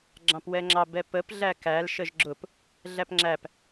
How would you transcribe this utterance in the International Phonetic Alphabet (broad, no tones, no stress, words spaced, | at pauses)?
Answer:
ɡ͡ǁɑ̃pwɛŋ͡ǁɑ bɛpəp ɮækæl ʃəʒɡ͡ǁʊp | ɮæpŋ͡ǁæp